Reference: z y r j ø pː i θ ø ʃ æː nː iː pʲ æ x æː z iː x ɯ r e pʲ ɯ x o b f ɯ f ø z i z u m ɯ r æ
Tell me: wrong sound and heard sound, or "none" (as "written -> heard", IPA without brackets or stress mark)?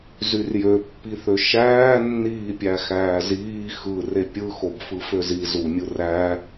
m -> mʲ